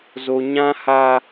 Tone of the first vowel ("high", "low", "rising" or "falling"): high